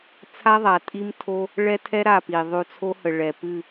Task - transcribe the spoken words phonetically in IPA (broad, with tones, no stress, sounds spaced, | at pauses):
t͡sʰ a˦ ðˤ a˨ tʼ i˦ m tʰ o˦ | ɭ ɛ˦ tʰ ɛ˦ ɾ a˦˨ p i˨ ðˤ ʉ˨ t͡sʰ o˦ h ə˨ ɭ ɛ˨ p ɨ˦˨